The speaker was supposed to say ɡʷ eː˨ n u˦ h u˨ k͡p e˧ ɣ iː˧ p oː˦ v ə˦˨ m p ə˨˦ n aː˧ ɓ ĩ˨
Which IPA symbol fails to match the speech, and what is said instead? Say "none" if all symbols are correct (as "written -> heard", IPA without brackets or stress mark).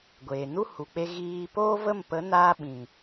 none